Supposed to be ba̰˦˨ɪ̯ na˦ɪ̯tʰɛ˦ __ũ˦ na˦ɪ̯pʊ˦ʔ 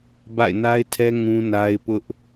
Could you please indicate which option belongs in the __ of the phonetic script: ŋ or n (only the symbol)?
ŋ